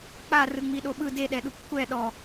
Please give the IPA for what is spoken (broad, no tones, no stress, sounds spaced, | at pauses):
k͡p a r ɯ ŋ͡m i ɗ o ɓ ɯ d e ɗ ɛ ɗ u p kʷʰ ɛ ɗ ɔ